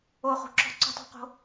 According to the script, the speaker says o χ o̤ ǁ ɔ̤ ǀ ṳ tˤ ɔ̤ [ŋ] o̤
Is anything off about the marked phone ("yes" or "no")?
yes